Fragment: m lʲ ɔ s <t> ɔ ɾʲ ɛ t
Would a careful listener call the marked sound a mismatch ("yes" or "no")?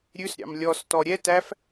no